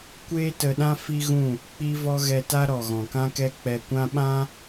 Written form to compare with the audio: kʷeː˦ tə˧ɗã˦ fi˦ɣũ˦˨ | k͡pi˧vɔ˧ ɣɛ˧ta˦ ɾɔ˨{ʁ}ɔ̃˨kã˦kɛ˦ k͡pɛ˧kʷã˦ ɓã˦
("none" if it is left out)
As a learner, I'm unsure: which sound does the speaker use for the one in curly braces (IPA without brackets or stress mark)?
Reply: ɣ